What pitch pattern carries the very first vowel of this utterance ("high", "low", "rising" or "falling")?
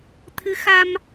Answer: rising